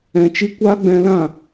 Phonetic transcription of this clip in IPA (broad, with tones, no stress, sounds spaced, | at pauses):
ɛ̃˧ t͡ʃ i˦ kʷ aː˦ ɡ͡b ɛ̃˧ l ã˦˨